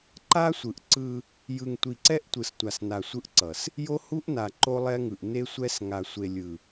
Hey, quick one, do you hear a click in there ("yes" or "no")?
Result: yes